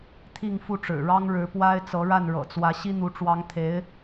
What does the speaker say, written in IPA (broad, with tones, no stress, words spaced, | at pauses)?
t̪ʰi˥˧ŋ fu˥˩ʈ͡ʂɻ̩˨˩ɻɑ˥ŋ ɻɻ̩˧˥pwa˥ɪ̯t͡sɤ˧˥ɻa˥˩n ɻɤ̰˨˩t͡swä˧˥ ɕi˥n̪u˧˥ʈ͡ʂwɑ˧˥ŋt̪ʰe˧˥ɪ̯